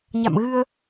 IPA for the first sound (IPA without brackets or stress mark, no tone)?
ɲ